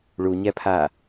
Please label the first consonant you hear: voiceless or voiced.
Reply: voiced